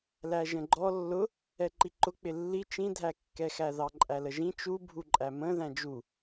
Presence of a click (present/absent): present